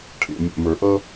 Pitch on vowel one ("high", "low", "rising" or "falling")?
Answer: low